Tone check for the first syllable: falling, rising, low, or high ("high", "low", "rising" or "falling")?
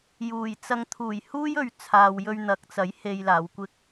low